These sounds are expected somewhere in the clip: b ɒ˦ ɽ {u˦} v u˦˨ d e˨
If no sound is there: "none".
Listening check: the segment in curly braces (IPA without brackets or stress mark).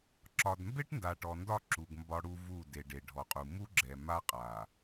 u˦